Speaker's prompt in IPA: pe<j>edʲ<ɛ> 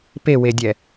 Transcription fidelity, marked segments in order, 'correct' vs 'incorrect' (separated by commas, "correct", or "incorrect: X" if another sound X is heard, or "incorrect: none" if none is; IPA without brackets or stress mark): incorrect: w, correct